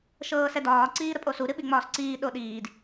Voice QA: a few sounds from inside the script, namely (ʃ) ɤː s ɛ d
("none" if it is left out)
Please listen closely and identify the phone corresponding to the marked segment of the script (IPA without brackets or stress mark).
ʃ